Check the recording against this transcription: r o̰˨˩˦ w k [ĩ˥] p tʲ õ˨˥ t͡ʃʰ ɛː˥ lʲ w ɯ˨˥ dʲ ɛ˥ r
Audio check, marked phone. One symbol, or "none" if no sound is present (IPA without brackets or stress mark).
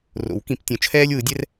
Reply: ĩ˨˩˦